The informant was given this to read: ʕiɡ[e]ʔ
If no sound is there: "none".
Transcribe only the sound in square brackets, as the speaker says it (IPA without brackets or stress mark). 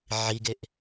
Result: e